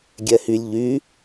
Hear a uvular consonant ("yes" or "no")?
no